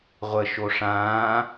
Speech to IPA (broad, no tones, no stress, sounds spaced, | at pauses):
ʁʷ ə ʃ o ʂ ãː